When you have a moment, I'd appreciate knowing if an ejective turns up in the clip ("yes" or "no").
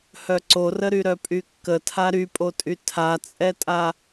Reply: yes